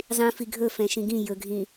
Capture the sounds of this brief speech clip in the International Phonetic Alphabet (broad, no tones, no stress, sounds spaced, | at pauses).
zˤ ĩ f i ɡʱ ɵ f ɛ̃ ʃ ĩ ɡ ĩ j ɵ ɡʱ ĩ